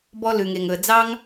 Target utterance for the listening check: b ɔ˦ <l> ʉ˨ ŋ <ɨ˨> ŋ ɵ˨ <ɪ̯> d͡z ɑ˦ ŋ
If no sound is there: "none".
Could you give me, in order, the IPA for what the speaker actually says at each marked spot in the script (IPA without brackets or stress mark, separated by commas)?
l, e˨, ə̯